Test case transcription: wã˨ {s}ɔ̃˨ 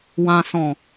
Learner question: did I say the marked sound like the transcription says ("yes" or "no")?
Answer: yes